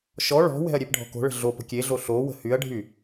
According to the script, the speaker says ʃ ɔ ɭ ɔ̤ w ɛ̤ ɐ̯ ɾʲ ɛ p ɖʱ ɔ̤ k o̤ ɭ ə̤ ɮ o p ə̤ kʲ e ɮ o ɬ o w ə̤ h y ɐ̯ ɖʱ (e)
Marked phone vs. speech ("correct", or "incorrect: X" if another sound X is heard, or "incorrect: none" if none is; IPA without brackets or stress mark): incorrect: y